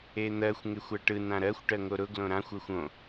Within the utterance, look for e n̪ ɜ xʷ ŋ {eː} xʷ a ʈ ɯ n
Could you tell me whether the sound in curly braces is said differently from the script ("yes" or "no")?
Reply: yes